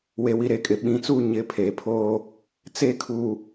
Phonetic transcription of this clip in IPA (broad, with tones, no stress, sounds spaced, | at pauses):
w e˨ w i˨ ɾ e˨ kʼ ɪ˨ ɓ ĩ˨˦ t͡s uː˦ ɲ ɪ˨˦ pʰ eː˨ pʰ oː˦ | t͡s e˦ kʰ uː˨